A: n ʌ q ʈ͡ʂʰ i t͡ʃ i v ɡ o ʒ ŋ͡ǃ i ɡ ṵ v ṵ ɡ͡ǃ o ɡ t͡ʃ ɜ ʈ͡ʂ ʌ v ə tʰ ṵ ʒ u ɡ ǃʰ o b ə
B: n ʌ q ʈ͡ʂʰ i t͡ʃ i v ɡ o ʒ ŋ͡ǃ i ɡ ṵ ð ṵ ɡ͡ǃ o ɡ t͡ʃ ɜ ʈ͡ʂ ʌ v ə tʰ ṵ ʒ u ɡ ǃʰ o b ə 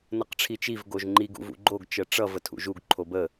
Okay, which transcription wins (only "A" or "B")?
A